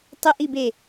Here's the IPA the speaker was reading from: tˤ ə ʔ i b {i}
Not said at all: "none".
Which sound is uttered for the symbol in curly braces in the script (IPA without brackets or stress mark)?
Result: e